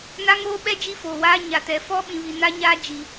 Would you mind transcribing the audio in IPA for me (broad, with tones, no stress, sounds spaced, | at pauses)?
n a˦ ŋ oː˦ ɓ ɛ˦ d͡ʒ i˦ f oː˨ w aː˦ ɲ a˨ t ɛ˨ f ɔ˦ ɓ ĩ˨ β i˨ n a˦ ɲ aː˦ d͡ʒ i˨